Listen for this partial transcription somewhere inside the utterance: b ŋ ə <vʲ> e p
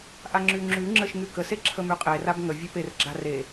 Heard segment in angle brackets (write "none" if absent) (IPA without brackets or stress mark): vʲ